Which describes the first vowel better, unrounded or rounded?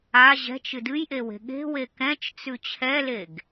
unrounded